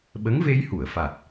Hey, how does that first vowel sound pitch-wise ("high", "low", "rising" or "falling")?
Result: rising